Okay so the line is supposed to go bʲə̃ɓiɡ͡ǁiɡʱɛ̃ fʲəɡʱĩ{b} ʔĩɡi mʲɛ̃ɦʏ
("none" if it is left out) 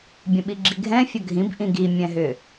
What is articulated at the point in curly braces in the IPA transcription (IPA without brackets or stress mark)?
b